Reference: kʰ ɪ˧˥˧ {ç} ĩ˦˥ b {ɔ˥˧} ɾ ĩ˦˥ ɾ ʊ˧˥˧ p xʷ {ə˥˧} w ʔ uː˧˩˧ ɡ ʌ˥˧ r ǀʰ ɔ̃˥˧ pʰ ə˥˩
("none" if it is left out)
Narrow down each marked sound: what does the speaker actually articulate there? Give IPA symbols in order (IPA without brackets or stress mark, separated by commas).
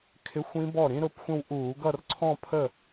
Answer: xʷ, ɔ˥˩, ə̃˥˧